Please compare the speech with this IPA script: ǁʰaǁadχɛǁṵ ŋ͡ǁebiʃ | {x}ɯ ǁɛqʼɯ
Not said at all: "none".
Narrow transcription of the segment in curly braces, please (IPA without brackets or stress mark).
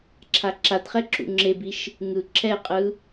ŋ